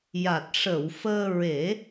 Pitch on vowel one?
low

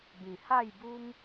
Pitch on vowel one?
low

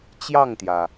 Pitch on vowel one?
falling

